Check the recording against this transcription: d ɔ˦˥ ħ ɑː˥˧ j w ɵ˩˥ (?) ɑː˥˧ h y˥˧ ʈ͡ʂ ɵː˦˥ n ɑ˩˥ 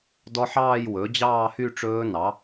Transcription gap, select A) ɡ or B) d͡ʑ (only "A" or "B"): B